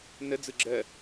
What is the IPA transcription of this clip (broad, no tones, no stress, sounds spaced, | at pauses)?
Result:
n ə d͡z ɯ ɡ͡ǁ ɜ